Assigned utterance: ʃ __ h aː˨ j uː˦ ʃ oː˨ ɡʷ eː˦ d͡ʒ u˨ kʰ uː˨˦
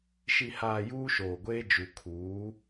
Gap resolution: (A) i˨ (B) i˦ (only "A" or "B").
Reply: A